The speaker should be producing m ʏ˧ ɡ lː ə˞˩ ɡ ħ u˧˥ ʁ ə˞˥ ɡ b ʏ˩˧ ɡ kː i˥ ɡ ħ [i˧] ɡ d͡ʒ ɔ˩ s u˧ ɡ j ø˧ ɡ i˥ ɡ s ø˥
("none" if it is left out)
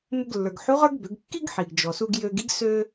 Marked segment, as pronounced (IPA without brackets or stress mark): i˩